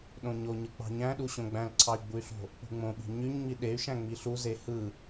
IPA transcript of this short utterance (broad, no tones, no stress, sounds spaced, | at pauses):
ɗ õ ɲ o ɲ ɯ k͡p ɑ̤ ɲ æ̃ ɗ u ɕ õ ɡ͡b æ̃ l ǀʰ ɑ y̯ ɡ͡b u y̯ ɬ o̤ | k͡p ṳ ŋ͡m õ ɓ i̤ ɲ y ɲ ŋ͡m i ɗ e y̯ ʃ æ̃ ŋ͡m i ɬ u z e h ɯ